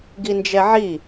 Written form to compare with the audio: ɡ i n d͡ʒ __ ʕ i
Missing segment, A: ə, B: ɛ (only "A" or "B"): B